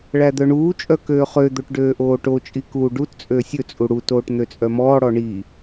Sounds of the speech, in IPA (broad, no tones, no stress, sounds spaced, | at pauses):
ɭ æ d̪ œ ɳ uː t͡ʃʼ œ k øː χ ø d̪ o ʈ ɖ øː ʔ oː ʈ o t͡ʃʼ i k uː ɖ u t t͡sʼ øː sʲ ɵ t͡sʼ u ɽ u t oː ʈ n̪ ø t͡sʼ œ m ɔː ɽ ɔ ɳ i